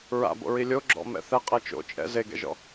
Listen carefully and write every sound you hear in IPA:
ɹ a̰ b o̰ ɹ i lʲ o ɡ͡ǁ ɔ̰ m ɛ̰ θ ɛ qʼ ɛ t͡ʃ o̰ t͡ʃʼ ɛ̰ z e ɡ ɛ̰ ʒ ɔ̰

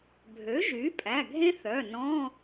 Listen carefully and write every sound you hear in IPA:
bʱ ø˩˥ ʒ y˩˥ pʼ æ˩˧˩ ɡʱ ẽ˦˥ θ œ˩˧˩ n ɔ̃˧˥˧

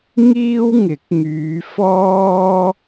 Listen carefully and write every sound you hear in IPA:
ŋ iː˥ w ŋ ɪ˨˥ k̚ ŋ yː˨˧ f ɔː˥

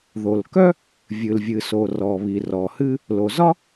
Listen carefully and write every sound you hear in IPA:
ð o˩ l k œ˥ | vʲ ɨ˩ l vʲ ɨ˩ s o˩ r ɔ˩ β i˩ r ɔ˩ h ɨ˥ | l o˩ z ɒ˥

